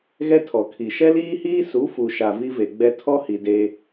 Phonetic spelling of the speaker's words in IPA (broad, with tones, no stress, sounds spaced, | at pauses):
ɣ ɛ˦ tʰ ɔ˨ kʰ i˨ ʃ ɛ˦ l iː˦ h iː˦ s u˨˦ f u˨ ʃ a˨ v i˦ v e˨ ɡ͡b ɛ˦ tʰ ɔ˦ h i˨ d e˦